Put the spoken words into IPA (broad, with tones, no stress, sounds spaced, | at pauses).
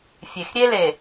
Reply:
fʲ e˨ x ɾʲ e˦ l e˨